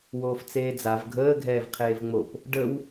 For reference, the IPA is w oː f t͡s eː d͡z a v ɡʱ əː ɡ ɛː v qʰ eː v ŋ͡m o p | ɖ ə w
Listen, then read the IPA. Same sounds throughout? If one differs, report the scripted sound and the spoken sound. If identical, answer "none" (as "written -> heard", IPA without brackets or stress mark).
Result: ɡ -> ɡʱ